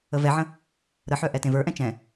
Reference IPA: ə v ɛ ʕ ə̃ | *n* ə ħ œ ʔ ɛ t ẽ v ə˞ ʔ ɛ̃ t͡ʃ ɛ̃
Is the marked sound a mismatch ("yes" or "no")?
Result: yes